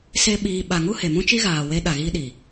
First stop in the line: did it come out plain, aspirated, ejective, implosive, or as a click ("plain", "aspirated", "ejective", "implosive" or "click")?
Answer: implosive